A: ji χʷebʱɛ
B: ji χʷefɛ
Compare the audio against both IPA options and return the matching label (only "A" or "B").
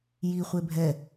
A